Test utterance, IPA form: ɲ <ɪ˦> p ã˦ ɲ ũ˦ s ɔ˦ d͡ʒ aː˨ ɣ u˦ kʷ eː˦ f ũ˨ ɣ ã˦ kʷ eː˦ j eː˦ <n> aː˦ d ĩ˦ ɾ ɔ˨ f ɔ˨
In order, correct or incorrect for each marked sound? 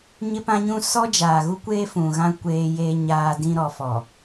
correct, incorrect

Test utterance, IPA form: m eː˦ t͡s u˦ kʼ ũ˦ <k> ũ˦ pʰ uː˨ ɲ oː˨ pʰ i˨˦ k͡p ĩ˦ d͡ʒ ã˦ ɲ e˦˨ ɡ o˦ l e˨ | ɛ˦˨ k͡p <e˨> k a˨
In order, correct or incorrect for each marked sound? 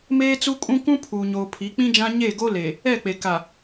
correct, correct

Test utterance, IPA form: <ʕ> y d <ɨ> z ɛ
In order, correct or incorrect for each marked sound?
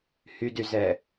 incorrect, incorrect

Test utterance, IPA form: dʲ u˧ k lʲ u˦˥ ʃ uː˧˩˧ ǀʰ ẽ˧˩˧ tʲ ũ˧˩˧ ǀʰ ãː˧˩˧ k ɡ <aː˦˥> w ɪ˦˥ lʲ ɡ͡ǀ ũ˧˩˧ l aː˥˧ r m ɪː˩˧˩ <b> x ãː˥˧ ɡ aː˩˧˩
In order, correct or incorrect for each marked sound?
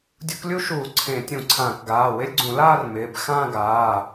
incorrect, correct

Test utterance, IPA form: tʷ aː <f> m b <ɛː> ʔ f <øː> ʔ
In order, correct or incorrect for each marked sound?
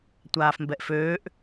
correct, incorrect, correct

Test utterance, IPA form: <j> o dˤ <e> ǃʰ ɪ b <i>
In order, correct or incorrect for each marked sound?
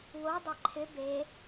incorrect, correct, incorrect

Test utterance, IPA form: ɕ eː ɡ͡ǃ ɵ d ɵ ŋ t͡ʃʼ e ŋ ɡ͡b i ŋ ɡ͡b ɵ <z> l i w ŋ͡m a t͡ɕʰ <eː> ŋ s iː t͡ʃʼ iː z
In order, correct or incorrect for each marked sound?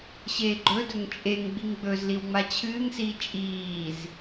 correct, incorrect

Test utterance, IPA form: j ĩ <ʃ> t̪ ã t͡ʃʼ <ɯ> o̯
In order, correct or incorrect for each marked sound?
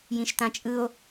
correct, correct

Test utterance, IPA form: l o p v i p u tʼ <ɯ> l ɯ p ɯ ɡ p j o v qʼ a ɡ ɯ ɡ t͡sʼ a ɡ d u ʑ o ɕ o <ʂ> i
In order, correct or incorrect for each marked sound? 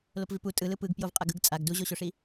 correct, correct

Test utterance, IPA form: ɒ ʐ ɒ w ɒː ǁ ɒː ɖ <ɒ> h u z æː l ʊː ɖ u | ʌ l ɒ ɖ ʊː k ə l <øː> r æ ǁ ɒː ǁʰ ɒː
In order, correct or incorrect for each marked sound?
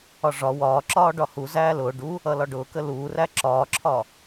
correct, incorrect

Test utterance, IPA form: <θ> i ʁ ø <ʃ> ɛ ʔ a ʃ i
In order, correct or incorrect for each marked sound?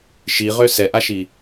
incorrect, incorrect

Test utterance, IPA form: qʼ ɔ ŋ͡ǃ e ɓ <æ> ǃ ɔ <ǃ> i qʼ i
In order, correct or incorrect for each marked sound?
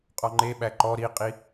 correct, incorrect

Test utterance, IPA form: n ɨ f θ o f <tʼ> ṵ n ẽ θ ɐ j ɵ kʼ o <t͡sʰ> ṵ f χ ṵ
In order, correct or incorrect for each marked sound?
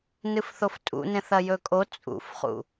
correct, incorrect

